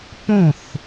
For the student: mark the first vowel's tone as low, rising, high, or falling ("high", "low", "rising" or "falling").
falling